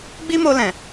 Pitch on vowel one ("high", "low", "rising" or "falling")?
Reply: high